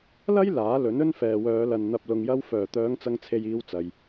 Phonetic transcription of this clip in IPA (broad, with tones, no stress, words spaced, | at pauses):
lɐ˥j laː˨˥lɵ˨˥n ɵ˥nfɛː˨wœː˨˧lɐ˨n n̪ɐ˨p̚lʊ˨ŋjɐ˧w fœː˨˩ t̪œː˨˧ŋt͡sɐ˨ŋt͡sʰe˨j iː˧w t͡sɐ˨j